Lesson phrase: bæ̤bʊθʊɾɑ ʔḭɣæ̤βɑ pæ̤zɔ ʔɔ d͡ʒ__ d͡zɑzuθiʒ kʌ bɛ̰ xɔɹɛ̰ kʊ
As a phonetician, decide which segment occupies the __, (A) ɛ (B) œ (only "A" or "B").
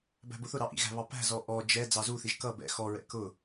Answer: A